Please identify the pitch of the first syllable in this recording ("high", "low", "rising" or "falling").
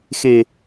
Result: low